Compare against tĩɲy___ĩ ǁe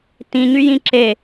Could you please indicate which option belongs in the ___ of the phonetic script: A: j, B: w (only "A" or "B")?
A